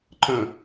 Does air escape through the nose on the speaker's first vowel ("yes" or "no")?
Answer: yes